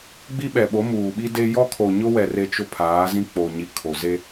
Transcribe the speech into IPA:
ɡ͡b i˦ ɓ ɛ˨ ɓ o˨˦ m uː˨ ɓ i˦ d e˦ j ɔ˦ kʰ o˨ ɲ ʊ˦ w ɛ˨ r e˦ t͡ʃ ʊ˦ pʰ aː˨˦ z ĩ˦ k͡p o˨ ɲ i˨ kʰ o˨ z e˦

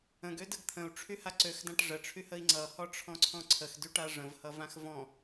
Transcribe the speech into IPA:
ə̃ ɡ ø d ə ɡ t̪ʰ ə̃ u̯ ʈ͡ʂʰ y h a ǀ ø x d ã ʈ ʐ ə ʈ͡ʂʰ y h ə i̯ ŋ͡ǀ ʌ h ɔ ʈ͡ʂʰ ɔ̃ ǀʰ ɔ̃ ǀʰ ə x d y ʈ a ʐ ə̃ v h ʌ v ã x v ɔ̃

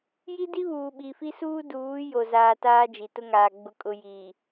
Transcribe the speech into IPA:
j i˦ d i˦ β uː˨ ɓ i˨ f i˦ s uː˦ d uː˨˦ j o˨ z aː˨ t aː˦ d͡ʒ i˨ t ʊ˦ ŋ aː˨ ɡ͡b ʊ˨ kʼ ʊ˨ j iː˨

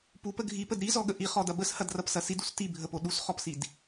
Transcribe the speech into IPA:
p u p ə ɡʱ i p ə d ɾ i z ɔ ɠ ə ʔ i χ ɔ d ɐ b ə s h ɐ d r ɐ p s ɐ s i d u s t i bʱ ə p o ɗ u s χ ɔ p s i d

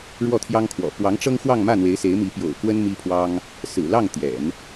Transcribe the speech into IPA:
ɻ w ɔ˥˩ t̪ʰ j ɑ˥ ŋ kʰ w ɔ̰˨˩ p w ɑ˧˥ ŋ ʈ͡ʂ ɤ˥ ŋ x w ɑ˥˧ ŋ m ä˥˩ n̪ w e˧˥ ɪ̯ s e˧˥ ɪ̯ m i˧˥ p j o̰˨˩ ʊ̯ k w ə˥ n m i˥ pʰ w ɑ˥ ŋ | s ɹ̩˨˩ l ɑ˥˩ ŋ t̪ j ɛ̰˨˩˦ n

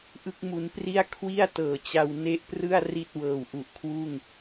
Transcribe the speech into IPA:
ʔ ɯ˦˥ k̚ m u˧ n p r i˥˩ a̯ kʰ w i˥˩ a̯ t ɤː˨˩ t͡ɕ a˧ w n e˦˥ ʔ p r ɯ˥˩ a̯ r i˥˩ t̚ w ɤː˨˩ w ʔ u˨˩ ʔ kʰ w uː˥˩ ŋ

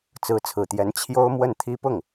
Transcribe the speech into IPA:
t͡s ɹ̩˧˥ t͡sʰ ɹ̩˨˩ t̪ j ɛ˧˥ n t͡ɕʰ j o˥ ʊ̯ m w ə˥˩ n t̪ʰ i˥ p ʊ˥˩ ŋ

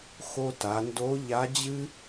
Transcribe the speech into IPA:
x o˧ t a˩˧ n d o˧˥ ʎ a˧˥ d͡ʑ ɨ˥

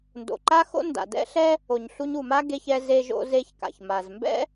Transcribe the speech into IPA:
n d o̰˩ ǃ a˥ x o̰˥ n d a̰˩ d ɛ̰˥ ɬ ɛ˥ | o˩ ɲ ɬ u˧ ɲ u˩ m a˥ ɡ e˧ ç ɛ˧ z e˧ ʒ o̰˧ z e˧ ç k a̰˩ ç m a˩ z m b ɛ̰˥

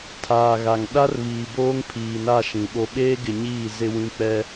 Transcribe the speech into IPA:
tʰ aː˨ ɣ a˨ ŋ ɗ a˦ r β iː˨ b oː˦ ŋ pʰ iː˨ n a˦˨ ʃ ĩ˨ ɓ o˦ ɓ eː˦ ɡ ɪ˨ ɲ iː˦˨ z ɪ˦ w ĩ˦ k͡p ɛ˦

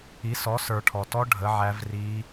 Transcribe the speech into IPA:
i˨˥ s ɔ˨˥ s ə˞˨ ʈʰ ɔ˨ t ɔ˦˥ ɖʱ ə˨˥ ʕ æ˦˥ v r iː˦˥

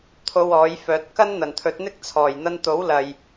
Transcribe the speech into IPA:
t̪ʰ o˧ w ɔː˨˥ j f œː˨˥ t̚ k ɐ˥ n n̪ ɐ˨˩ n t̪ʰ ɵ˨˥ t̚ n̪ ɪ˥ k̚ t͡sʰ ɔː˨˩ j n̪ ɐ˧ n t̪ o˨˥ w l ɐ˨ j

